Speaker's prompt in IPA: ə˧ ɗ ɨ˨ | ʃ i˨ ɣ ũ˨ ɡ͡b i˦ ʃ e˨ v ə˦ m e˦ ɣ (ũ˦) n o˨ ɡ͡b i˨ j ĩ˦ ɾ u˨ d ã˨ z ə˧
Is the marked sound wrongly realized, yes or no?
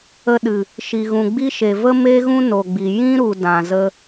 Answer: no